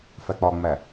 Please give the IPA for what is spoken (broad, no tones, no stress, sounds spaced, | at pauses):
f æ k͡p ɒ ŋ͡m æ